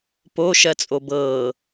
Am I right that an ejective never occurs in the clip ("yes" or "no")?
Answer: no